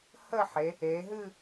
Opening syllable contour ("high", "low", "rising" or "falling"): falling